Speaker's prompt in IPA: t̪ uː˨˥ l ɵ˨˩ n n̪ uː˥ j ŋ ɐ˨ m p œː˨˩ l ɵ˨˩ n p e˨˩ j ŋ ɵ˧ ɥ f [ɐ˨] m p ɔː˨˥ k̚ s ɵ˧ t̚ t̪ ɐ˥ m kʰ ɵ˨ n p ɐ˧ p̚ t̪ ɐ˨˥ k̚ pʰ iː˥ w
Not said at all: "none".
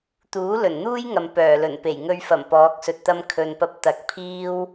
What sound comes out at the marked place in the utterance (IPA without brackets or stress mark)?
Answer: ɐ˨˩